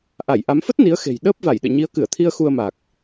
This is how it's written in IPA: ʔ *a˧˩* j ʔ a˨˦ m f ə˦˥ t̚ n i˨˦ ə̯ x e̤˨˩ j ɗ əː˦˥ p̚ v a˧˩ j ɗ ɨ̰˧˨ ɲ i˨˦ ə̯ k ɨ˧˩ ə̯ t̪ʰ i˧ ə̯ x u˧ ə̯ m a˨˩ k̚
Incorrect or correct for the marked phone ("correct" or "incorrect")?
correct